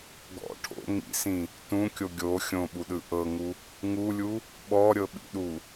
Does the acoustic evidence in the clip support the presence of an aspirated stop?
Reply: yes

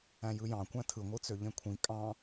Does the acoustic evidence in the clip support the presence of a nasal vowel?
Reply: yes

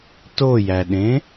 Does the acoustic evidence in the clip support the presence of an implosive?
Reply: yes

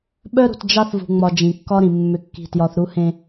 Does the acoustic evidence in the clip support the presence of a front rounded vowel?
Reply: yes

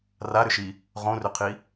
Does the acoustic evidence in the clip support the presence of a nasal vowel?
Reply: yes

